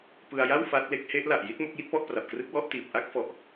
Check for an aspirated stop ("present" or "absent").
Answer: absent